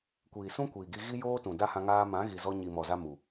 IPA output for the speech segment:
kʷ iː˨ s ũ˦ kʷ iː˨ ɡ i˧ ɣ i˦ j oː˦ t ũ˨ d a˦ h ã˧ ŋ aː˧ m ã˨˦ ɣ i˨ z ɔ˧ ɲ i˨ m ɔ˨ z a˧ m u˨

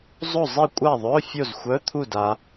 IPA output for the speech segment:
zˤ o˥˨ zˤ i˥˨ kʷʼ a˥˨ ðˤ œ˧˥˧ fʲ o˥˨ z xʷ œ˧˥˧ t̪ʰ u˥˨ d a˨˦

